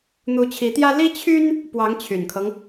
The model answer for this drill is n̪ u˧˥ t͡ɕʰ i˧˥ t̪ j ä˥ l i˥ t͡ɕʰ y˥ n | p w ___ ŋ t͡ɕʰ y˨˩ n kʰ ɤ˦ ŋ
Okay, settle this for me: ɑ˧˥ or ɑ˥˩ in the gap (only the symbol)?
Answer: ɑ˧˥